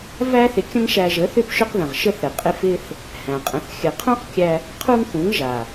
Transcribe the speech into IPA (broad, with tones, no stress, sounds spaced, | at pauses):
v æ˦ θ ɪ˧ kʲ ə̃˦ ŋ ʃ æ˧ ʒ ə˨˦ θ ʏ˦ p ʃ ʏ˦ q ð ə̃˨ ʁ ʃ ə˦ θ ɾ ɘ˨ qʼ ɪ˦ f ɪ˦ θ | h æ̃˨ qʼ ə̃˨˦ θ xʲ ɘ˧ qʰ ũ˦ q kʲ æ˧ | qʰ u˦ ŋ θ ũ˨˦ ŋ ʒ a˨